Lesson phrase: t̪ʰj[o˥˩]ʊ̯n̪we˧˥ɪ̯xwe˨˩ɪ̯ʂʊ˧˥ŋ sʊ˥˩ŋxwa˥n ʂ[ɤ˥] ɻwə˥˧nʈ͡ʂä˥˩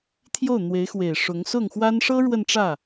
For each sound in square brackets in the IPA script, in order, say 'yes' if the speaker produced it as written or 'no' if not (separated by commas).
yes, yes